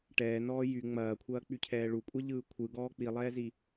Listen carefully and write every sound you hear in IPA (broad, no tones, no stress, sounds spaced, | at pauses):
ʈ ɛː n ɔː j y ŋ͡m ɐː kʷʰ ɐː k͡p y cʰ ɛː ɭ u kʷʼ ɛ ʎ ɯː kʷʰ ɯ ɡ ɔː k͡p i lˠ ɛː z i